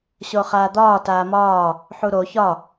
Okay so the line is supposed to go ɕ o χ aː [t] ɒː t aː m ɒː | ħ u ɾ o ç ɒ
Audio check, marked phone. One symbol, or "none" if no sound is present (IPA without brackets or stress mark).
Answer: d̪